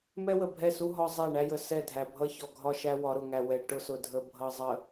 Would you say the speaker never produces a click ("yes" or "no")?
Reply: yes